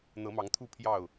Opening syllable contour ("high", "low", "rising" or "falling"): rising